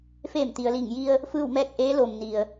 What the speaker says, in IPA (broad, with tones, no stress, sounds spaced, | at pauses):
f eː˧˩ m t̪ i˩ ə̯ l iː˧˩ ŋ j i˧ ə̯ | f ɯː˥˨ w m ɛː˥˨ k̚ ʔ eː˧˥ l oː˩ m n i˩ ə̯